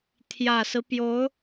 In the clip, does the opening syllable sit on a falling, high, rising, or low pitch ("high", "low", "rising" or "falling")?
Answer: low